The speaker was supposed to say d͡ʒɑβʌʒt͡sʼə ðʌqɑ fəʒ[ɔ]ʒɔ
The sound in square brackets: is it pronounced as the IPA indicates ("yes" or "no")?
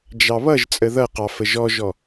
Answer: yes